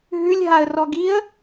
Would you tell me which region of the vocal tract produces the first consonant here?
throat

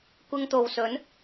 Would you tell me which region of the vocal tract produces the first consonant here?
velum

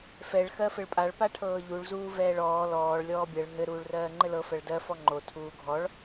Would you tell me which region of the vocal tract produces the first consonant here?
lips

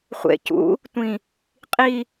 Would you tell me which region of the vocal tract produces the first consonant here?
uvula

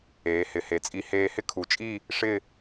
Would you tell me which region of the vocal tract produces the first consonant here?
throat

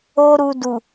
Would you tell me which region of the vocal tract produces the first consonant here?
tongue tip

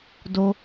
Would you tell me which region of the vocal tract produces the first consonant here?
tongue tip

